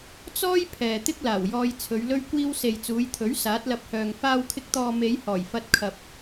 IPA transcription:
t͡s ɔː˥ j pʰ ɛː˨ t̪ ɪ˥ k̚ l aː˨˩ w j ɔː˧ j t͡sʰ ɵ˨˧ ɥ l ɵ˥ ɥ kʷ iː˥ w s e˨ j t͡s uː˨˧ j t̪ʰ ɵ˨˥ ɥ s aː˨˥ t̚ l ɐ˧ p̚ h œː˨ ŋ f aː˧ w kʰ ɪ˧ k̚ t̪ ɔː˨ m e˨˧ j h ɔː˨˩ j f ɐ˧ t̚ kʰ ɐ˨ p̚

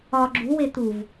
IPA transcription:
ɒ ɡ͡ǁ u w e t̪ u v

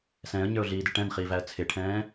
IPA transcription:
s ɛ̃ː ə̯ ɲ ə˞ ʊ̯ ɮ iː d ɪ ʈ ɛ̃ n χ iː v æ ə̯ t͡sʰ ɪ ʈʰ ɛ̃ː

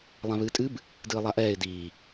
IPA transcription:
lˠ ã β ɨː tʼ ɨ b | d ɨː lˠ a ʔ ɛː ɪ̯ d iː

